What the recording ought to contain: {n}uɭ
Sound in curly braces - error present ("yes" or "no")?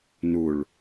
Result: no